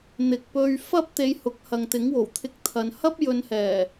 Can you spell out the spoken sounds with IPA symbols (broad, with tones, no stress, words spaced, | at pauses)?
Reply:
n̪ɪ˨k̚pɵ˧ɥ fɐ˥p̚t̪e˨˧j hʊ˨˥k̚ hɐ˨ŋt̪ɪ˨˥ŋwo˨˩wt̪ʰɪ˧k̚ t̪ʰɐ˨nhɐ˥p̚ jɵ˨nhɛː˨˩